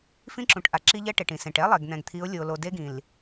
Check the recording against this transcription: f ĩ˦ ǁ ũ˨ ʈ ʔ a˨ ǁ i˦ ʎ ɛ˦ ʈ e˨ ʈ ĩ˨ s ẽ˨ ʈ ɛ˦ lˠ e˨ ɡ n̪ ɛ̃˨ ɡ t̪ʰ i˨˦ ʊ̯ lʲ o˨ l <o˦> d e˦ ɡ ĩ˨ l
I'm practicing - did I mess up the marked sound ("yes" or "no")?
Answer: yes